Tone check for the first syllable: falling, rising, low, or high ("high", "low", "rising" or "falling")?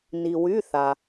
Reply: low